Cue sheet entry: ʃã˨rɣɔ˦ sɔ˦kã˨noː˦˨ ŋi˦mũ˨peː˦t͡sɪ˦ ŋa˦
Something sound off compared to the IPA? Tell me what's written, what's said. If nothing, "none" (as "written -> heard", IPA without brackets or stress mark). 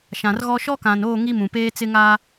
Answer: s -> ʃ